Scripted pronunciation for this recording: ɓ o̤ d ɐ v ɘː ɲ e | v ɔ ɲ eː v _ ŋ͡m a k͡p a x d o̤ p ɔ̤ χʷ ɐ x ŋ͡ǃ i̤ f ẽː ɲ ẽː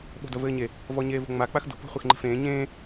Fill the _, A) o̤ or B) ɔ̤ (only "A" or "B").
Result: A